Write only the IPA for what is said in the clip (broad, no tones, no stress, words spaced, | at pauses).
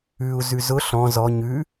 ʉu̯ zʉzʊ ɬɔ̃ zɔ ɲʉ